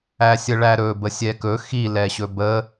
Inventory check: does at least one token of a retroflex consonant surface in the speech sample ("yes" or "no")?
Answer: yes